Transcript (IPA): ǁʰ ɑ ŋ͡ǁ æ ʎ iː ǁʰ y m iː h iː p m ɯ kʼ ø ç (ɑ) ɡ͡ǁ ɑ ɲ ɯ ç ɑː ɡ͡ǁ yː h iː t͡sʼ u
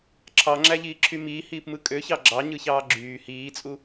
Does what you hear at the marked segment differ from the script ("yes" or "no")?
no